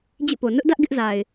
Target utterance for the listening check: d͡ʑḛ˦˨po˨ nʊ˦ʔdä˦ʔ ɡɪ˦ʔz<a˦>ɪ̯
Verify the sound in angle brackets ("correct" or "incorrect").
incorrect